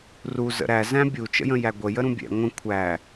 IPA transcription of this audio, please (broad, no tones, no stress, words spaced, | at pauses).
ru zə̰ɾæ zæ̃bʲu t͡ʃə̰jə̃jæɡʷə jəɾũbʲɛ̰ ŋʷə̃ kʷʰæ